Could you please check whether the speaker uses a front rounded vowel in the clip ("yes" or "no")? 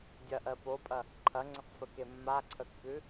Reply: no